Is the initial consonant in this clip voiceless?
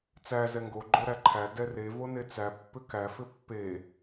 yes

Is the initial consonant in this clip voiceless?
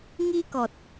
no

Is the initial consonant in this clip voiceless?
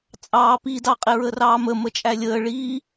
yes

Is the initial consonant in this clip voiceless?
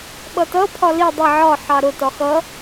no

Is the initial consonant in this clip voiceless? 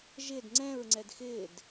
no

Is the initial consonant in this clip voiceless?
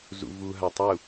no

